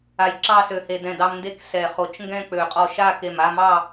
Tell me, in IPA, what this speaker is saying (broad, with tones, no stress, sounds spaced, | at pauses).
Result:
a˧ j ǁ ɑ˥˧ s ø˧ h e˧ d ɛ̃˧˩ d ɑ˧ m n d e˧˥ k s ɛ˧˩ χ o˧˩ t͡ʃ ŋ ɡ ɛ̃˥˧ k͡p ø˧˩ qʼ ɔ˧ ʃ a˥˧ k e˧˩ m a˥˧ m ɑ˥˧